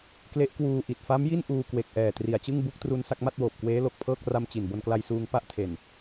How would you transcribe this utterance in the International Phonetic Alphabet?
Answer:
k l e˦˥ ʔ k w uː˧ ʔ i˨˩ t̚ f a˦˥ m j i˥˩ n ʔ uː˧ k w e˨˩ k̚ ʔ ɛː˨˩ t r i˨˩ a̯ t͡ɕ ɯ˥˩ ŋ b u˥˩ k̚ t r u˧ n s a˥˩ k̚ m a˥˩ t̚ w oː˨˩ p̚ k w eː˦˥ l o˨˩ k̚ pʰ ɤː˥˩ k̚ r a˧ m t͡ɕ i˨˩ n b o˧ n k l a˧ j s uː˧ ŋ p a˥˩ ʔ tʰ e˨˩ n

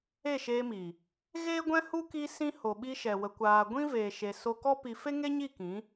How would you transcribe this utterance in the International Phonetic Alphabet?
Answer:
e˦˨ ʃ e˧ m i˨ | ɣ eː˦ ɡʷ ɛ̃˦ h u˦ k i˧ s ĩ˧ h o˨ ɓ i˧ ʃ ɛ˨ w ə˨ kʷ aː˨ ɡʷ ĩ˦ v eː˨ ʃ e˨ s o˧ k ɔ˦ p i˧ f e˦ ŋ e˦ ɲ i˦˨ k ĩ˨˦

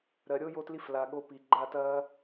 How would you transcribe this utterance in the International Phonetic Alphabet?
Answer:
ɾ ɜ˨ ɾʲ o˦ j o˧ t l i˧ f l a˨ ɠ o˧ p i˨ ɡ͡ǃ a˦˨ t ɐː˦

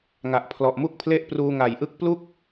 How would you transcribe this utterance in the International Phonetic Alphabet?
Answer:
ŋ a˨˩ ʔ pʰ l ɔ˨˩ ʔ m u˥˩ k̚ pʰ l e˥˩ ʔ p r uː˧ ŋ a˨˩ j ʔ ɯ˥˩ k̚ p l u˥˩ k̚

